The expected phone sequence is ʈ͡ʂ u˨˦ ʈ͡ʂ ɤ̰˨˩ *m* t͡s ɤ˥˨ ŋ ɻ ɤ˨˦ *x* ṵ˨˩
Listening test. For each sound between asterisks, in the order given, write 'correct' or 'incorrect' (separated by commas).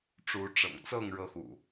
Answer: incorrect, correct